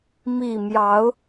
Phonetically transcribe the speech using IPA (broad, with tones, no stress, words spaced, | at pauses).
mi˥˨ mjɑ˨˦ʊ̯